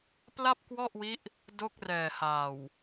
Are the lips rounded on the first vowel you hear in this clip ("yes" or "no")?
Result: no